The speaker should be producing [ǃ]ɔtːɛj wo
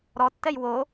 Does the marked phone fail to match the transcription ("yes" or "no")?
yes